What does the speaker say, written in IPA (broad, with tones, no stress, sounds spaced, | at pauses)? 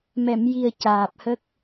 m ɛ˨˩˨ m j i˨˩ ə̯ c aː˨˩ p̚ h ə˦˥ k̚